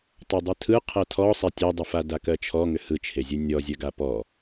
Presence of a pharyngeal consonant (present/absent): absent